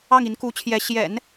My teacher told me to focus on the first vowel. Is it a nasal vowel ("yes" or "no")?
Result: no